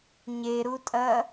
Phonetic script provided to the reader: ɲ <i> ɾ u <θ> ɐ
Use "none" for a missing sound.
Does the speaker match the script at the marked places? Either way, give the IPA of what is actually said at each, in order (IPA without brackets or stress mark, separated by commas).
e, tʼ